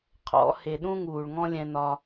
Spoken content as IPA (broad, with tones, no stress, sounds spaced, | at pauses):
qʰ ɔ̰˨˦ h e˨ ɗ ũ˦ ŋ uː˨ ɭ ŋ ɔ̃˦ lʲ ɛ̃˧ n ɒ˧